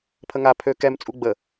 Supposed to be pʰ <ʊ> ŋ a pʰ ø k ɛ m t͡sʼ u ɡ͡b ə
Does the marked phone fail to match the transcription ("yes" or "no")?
yes